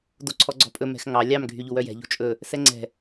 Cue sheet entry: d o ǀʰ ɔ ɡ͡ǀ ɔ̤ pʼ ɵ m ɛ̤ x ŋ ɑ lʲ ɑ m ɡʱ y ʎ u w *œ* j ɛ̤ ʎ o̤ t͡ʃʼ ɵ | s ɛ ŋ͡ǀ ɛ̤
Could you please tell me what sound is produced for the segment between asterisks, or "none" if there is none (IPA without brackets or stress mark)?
œ